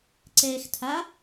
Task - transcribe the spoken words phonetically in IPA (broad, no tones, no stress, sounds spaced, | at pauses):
ǀ ɛː x tʰ a